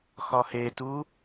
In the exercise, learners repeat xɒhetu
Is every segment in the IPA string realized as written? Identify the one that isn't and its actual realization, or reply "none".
none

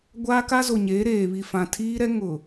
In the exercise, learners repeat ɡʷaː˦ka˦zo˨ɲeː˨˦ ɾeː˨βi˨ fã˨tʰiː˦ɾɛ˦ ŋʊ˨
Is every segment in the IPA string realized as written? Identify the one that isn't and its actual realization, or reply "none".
none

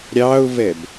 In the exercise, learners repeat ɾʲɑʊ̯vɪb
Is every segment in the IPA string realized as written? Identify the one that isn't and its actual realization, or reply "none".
ɪ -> ɛ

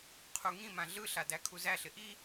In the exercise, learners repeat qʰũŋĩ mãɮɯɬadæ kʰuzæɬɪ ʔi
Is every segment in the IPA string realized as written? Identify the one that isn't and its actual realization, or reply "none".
ũ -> u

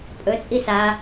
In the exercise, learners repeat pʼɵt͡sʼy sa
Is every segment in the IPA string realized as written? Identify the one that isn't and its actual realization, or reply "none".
y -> i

